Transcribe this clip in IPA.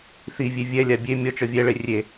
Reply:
θi vʲevʲɛlʲa bʲe mʲɔt͡ʃɔ vʲɛɭe rʲe

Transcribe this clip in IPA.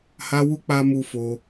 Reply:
ha˧wu˧ k͡pa˧ mu˧fo˧

